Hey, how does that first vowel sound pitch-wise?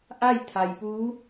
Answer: falling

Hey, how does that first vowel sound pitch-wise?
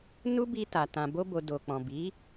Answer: high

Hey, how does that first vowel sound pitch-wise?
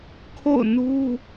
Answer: falling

